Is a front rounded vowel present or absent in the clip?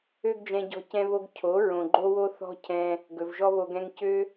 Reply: present